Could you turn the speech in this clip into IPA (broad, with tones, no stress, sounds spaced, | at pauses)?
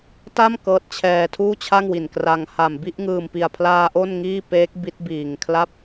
t a˥˩ m k ɤː˦˥ t̚ t͡ɕʰ ɛː˧ tʰ uː˥˩ t͡ɕʰ a˥˩ ŋ w i˨˩ n k r a˧ ŋ h a˨˩ m b i˥˩ ʔ ŋ ɯː˨˩ m p i˨˩ a̯ pʰ l aː˧ ʔ o˥˩ n ŋ iː˥˩ p eː˦˥ k̚ b i˦˥ t̚ b iː˨˩ ŋ kʰ l a˥˩ p̚